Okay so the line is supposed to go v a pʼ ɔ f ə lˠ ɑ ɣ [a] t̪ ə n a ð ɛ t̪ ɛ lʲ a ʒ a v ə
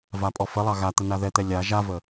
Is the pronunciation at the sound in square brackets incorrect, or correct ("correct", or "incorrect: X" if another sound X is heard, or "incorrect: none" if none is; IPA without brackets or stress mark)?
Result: correct